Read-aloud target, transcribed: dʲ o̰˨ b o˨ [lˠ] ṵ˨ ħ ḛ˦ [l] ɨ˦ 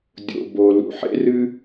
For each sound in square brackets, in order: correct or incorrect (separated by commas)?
incorrect, incorrect